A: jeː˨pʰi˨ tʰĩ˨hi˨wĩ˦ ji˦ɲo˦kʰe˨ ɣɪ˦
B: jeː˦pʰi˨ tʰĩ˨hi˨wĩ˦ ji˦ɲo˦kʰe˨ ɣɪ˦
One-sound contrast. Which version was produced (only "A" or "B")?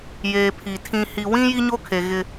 A